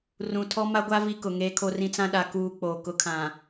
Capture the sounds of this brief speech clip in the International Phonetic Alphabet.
rũ˨tʰɔ˦ma˦ɡʷa˦ vi˦kʊ˨ ŋeː˦kʰo˦rĩ˦ t͡sã˦ɗa˨ kuː˨ k͡po˨ kʊ˨˦kʰã˨

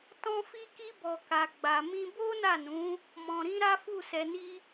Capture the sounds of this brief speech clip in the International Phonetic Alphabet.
tɔ̃˧fi˧ki˧bɔ˨ ka˨ɡ͡ba˨mĩ˧ bo˦na˦˨nũ˨˦ | mɔ̃˨ɾĩ˧ ɾa˦fu˦˨sɛ˧ni˦

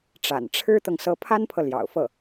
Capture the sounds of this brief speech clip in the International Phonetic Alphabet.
ʈ͡ʂa̰˨˩nʈ͡ʂʰɻ̩˥t̪ɤ˨ŋ sɤ˧˥pʰa˥npʰɤ˨ ljɑ̰˨˩ʊ̯fɤ˥˩

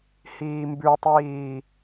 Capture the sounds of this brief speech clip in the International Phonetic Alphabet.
hiːmbʉtˤiː

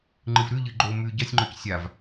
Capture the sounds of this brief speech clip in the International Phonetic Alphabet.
ŋ͡ǃɨvɾʉʎɨ ɡ͡ǃo mʉ ɟɐsʲŋ͡ǃɵc sʲav

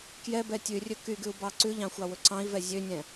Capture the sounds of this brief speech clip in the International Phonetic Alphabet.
kjɛbɛ tʲʉrʲɵ kyɡʉu̯ bɑǀʉʎɑ̃ xʷɑwɵǀɑ̃i̯vɛ zʲønʲɛ̃

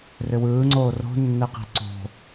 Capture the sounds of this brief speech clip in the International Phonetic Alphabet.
rʏwɯːŋ͡ǀoː ro̤nːɛqi̤ ǀo̤

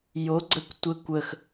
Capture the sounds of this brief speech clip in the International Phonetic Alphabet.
jo ɡ͡ǀəkʷ tʷɘ kʷəx

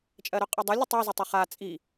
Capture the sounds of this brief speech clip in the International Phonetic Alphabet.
t͡ʃʼɜɾʊqʼɨdˤɨlʲ ɨtˤa zʊtˤɨχa t͡sʼi

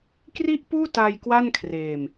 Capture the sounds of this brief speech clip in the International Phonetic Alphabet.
kri˥˩ʔpuː˥˩ta˧j kwa˥˩nkʰreː˧m

